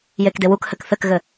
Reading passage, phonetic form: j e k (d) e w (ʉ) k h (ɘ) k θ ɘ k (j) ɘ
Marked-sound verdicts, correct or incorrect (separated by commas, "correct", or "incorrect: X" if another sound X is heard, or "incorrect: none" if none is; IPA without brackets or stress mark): correct, incorrect: u, correct, incorrect: ɣ